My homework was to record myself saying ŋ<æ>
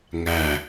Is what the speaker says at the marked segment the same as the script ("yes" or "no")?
yes